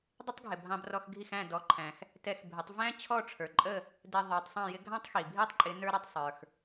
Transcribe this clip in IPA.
dˤ ɪ˥ tˤ ɡʱ ɪ˩ bʱ ɑ̃˧ b r ɔ˧ x ɡʱ i˥˩ x æ̃˥˩ d ɔ˩˥ ǃʰ æ̃˩ x | t ɛ˧ x bʱ ɪ˩˥ tˤ v æ̃˥ t͡ɕʰ ɔ˥˩ ʈ͡ʂʰ ə˞˩ ǃʼ ə˥˩ | d ɛ˧ ðˤ ə˞˩˥ tˤ sˤ ɑ̃˥˩ j ɪ˥ ɡʱ ɑ̃˥ tˤ x i˩ bʱ i˥ tˤ ǃʼ ɪ˩˥ n ə˞˥ ɾ ʌ˥˩ tˤ sˤ ə˞˩ x

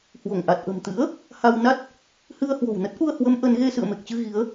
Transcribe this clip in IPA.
h w o˧˩ ŋ ʔ a˨˩ t̚ ʔ ə̤˨˩ m t̪ ɨ̰˧˥ ə̯ | h a˧ w n a˦˥ t̚ | h ɨ˧ ə̯ h w o̤˨˩ w n ə˦˥ t̚ ʔ u˧ ə̯ h w ə˨˦ m ʔ ə˨˦ n ɣ e˧ s ɨ̰˧˨ ə̯ m e˨˩ k̚ t͡ɕ ɨ˧ ɣ i˨˦ ə̯

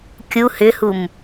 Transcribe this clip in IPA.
kʲ u h ʏ h u m

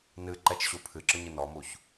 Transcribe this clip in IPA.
n ɨ ǃ ɛ t͡ʃ ɕ u pʰ ɨ ǁ ɨ ɲ ɨ n ɔ m u ç

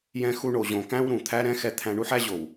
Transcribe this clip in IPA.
j ɛ̃˦ x u˦ ɳ o˨ ʑ õ˨ k æ̃˦ w ɾ ũ˨ t̪ʰ æ˦ ɾ ɛ̃˦ x ɛ˦ t̪ʰ æ̃˦ ɳ u˦ ħ æ˦ ʑ o˨ w

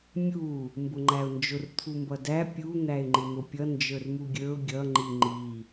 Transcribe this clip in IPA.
mʲ u | m b ʊ ŋ͡ǃ æ ʊ̯ n d͡ʒ ʊ r t̪ʰ u m b ʌ d æ pʲ u n̪ æ ɪ̯ ŋ͡ǃ ɪ n̪ ʊ pʲ ʌ n d͡ʒ ə˞ r m u ɡʲ ə˞ ʊ̯ ɡʲ ʌ ŋ͡ǃ i ŋ͡ǃ i

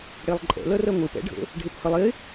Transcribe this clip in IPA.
ɽ e lˠ ǃʼ ɛ̰ l ɜ r ɜ ŋʷ e p ɛ̰ ɖʱ ə̰ | ɖʱ e p h ə lˠ e

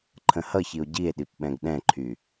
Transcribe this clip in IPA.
ǃʰ ə̃ h ʌ ç i o̯ ɟ i e̯ ɗ i p ɓ ɛ̃ ɡ ɗ ɛ̃ ǃʰ y

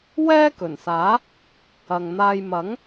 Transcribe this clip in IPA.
w ɛː˥ k ɵ˨˩ n s aː˨˥ | ɐ˨ ŋ n̪ aː˧ j m ɐ˨˥ ŋ

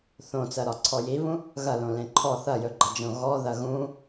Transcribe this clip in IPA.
θ õ t͡s ɜ ɾ ɒ ǀʰ ɔ j i β ũ | ɣ ɐ l õ l ẽ ǃʰ ɔ θ ɐ j ɵ ɡ͡ǃ ɐ d͡ʒ õ ɣ ɔ ð ɐ ɣ ũ

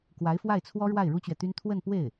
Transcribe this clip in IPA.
k w a˧˥ ɪ̯ f w a˥˩ ɪ̯ t͡sʰ w ɔ˥ ɻ w a˥˩ ɪ̯ ɻ u˥ t͡ɕ ɥ ɛ˨ t̪ y˥ n t̪ʰ w ə˥˧ n p w e˥˩ ɪ̯

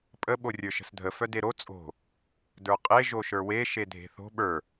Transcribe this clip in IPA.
pʼ ə ɓ o rʲ ə˞ ʃ ə̤ s dʱ ə f œ d e ɾ o t͡sʼ o̤ | d ə˞ qʼ e ʒ o ʃ ə˞ w e ʃ e dʱ e̤ θ o̤ ɓ ə˞

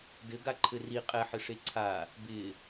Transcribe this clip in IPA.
d ɘ ɡ a ǃʰ ɘ r i qʼ ɛ ħ ɘ ʂ e ǀʰ a | b ɪ

